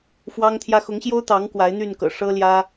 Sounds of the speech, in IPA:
fwɑ˦ŋt̪ʰjä˦ xʊ˨˦ŋɕjo˦ʊ̯t̪ɑ˨˦ŋ kwa˨˦ɪ̯n̪y˥˨nkɤ̰˨˩ ʂɤ˦ljä˦

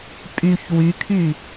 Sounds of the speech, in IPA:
pʼyç wykʰy

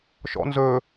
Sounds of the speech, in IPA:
ʃɔ̰ nzɵ

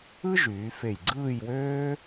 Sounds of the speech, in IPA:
ɯ˥ ʒyː˩˧fe˧˩jɡ͡ǀɯː˥˧j wøː˥

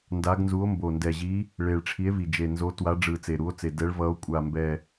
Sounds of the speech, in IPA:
nda˨˦ɡnzu˨˦o̯ mbo˨˩ndɛ˨˩ʑi˨˦ | ɭe˨˩ɭʈ͡ʂʰi˨˦e̯vi˨˩ d͡ʒe˨˩nzo˨˦twa˨˦ ɖ͡ʐɯ˨˩ t͡se˨˩ɾu˨˦o̯t͡se˨˩ dɛ˨˦ɭvʌ˨˦o̯ kʷʼa˨˩mbɛ˨˩

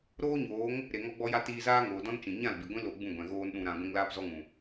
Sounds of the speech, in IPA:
ɾoː˦ɲoː˨˦ŋ | ɾe˨ŋɔ˧ɡ͡bɔ˧ja˧ tiː˧zaː˦ŋoː˨dɔ̃˦n t͡ʃĩ˨ ɲã˦˨lbi˨ɡʷĩ˦ lo˧ɡ͡bũ˦˨ɡʷɛ̃˨ ɣoː˦nɗũ˧ɾã˧ ɡʷĩ˧ŋ laː˦pzɔ˦ŋũ˨

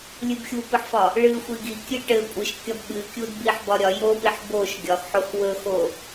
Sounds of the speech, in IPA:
lʲɨbxʲupɨħfɒ | ɭɨ xʷiɡikʲɨ ʈɘ kʷʼɨʃkʲɒb ɓɨkʲud biħbɒɾʲɒ jopiħ boʃ ɡʲɒxħox wɵxo

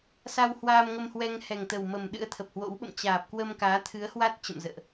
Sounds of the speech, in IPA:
sa˧w hwaː˧mŋə˧mhwɛ˧ŋ hɛ˨˩ŋt̪ə˨˩wmə˨˩m ɗɨ̰˧˥ə̯t̪ʰə˨˩p̚hwo̰˧˥wɓə̰˧˨m t͡ɕaː˨˩p̚kwə˧m kaː˨˦t̪ʰɨ˨˦ə̯hwa˦˥t̚ t͡ɕə̰˧˨mzə̰ː˧˨ʔ

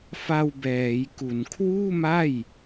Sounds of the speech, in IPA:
fa˧w bɛː˩˦jku˨˩n kʰwuː˥˩ma˥˩j

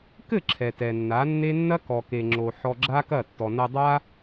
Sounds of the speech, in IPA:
kɘ˦˨ ǁʰɛ˨tɛ˨nːa˨˦nːe˦ nːɐ˦ kɔ˧ke˧ŋ͡ǁo˧ ħɔ˧ɡ͡ǁa˦ kɐ˦˨ tːɔ˨nɐ˧dˤa˦

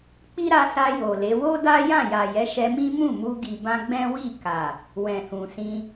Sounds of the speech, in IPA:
k͡pi˦ɾa˧sa˧ jo˨le˨˦ wo˦ da˦jã˦˨ja˨jɛ˨˦ ʃɛ˧mĩ˦mũ˦˨mu˧ ɡi˨bã˧ɡ͡bɛ̃˦wi˦˨ ka˨ | wɛ̃˨hũ˨sĩ˧

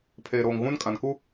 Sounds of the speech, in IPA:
pʰeː˨ɾoː˨ŋ ɣũ˦n kʼã˨nku˦

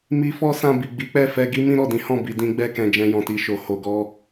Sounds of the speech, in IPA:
mi˧fɔ˦ sã˧ bi˨ɡ͡bi˨˦k͡pɛ˦˨ fɛ˧ɡi˦ mĩ˦ɾɔ˦˨dĩ˨˦hɔ̃˦˨ bi˨dĩ˧ɡ͡bɛ˧kɛ̃˨ d͡ʒɛ̃˧jɔ̃˨ti˧ʃo˨ ho˨ɡɔ˧

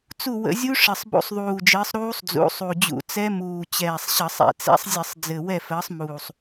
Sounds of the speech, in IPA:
t͡su˦˨wə̰˧˩˧zʲu˦˥ ʂɘ˨˩sˤbṵ˧˩˧sˤðˤuː˨˩d͡ʒɘː˨˦sˤ ɾuː˦˥sˤd͡zṵ˨˦sˤu˨˩d͡ʑṵ˧˩˧ t͡sɛ˦˥muː˨˩t͡ɕɛː˨˩sˤɕə˧˩˧sˤ ɛ̰˧˩˧t͡sɛ̰˦˥sˤ zʲɘ˧˩˧sˤd͡zɘ˨˩ wɛ˦˨fəː˨˦sˤmuː˨˩sˤ

